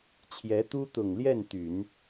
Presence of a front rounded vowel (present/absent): present